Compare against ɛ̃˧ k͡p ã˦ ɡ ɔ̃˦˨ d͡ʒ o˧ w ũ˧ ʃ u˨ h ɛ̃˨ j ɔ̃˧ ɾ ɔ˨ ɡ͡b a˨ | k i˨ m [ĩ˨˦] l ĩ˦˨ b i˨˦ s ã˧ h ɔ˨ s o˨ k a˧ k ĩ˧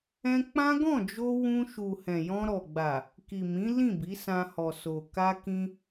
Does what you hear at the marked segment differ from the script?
no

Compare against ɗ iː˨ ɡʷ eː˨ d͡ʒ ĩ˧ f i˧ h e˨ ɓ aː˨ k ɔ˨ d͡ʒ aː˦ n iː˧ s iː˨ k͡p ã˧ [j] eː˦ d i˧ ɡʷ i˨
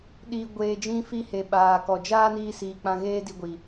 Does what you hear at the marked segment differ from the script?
yes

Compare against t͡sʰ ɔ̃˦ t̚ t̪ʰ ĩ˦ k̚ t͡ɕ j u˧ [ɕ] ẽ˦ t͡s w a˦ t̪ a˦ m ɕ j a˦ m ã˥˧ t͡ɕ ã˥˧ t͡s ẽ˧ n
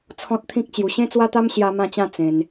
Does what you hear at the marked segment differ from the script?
no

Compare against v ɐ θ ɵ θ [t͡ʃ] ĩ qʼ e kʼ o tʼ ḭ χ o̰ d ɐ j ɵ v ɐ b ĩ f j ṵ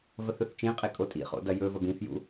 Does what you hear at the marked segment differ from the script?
no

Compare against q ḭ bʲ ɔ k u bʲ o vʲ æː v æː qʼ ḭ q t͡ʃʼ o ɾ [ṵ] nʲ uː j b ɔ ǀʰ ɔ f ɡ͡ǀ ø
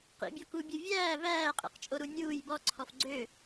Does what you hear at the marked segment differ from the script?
yes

